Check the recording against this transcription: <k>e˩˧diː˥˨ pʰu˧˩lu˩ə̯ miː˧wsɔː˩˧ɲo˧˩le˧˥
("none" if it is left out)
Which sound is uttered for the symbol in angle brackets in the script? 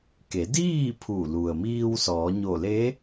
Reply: k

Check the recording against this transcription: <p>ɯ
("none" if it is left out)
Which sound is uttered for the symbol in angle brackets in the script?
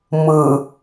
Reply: m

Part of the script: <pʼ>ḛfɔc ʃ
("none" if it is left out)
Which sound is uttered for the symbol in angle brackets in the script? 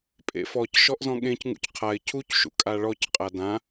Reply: pʼ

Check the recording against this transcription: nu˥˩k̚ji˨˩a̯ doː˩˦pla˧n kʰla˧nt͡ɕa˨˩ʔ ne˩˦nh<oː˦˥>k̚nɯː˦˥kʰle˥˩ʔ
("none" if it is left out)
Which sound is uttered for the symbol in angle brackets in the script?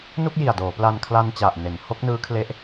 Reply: o˦˥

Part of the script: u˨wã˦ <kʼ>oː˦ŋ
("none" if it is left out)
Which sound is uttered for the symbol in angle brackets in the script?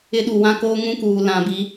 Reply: k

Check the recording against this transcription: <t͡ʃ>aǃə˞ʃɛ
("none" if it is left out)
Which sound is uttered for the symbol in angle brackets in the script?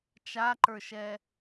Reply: t͡ʃ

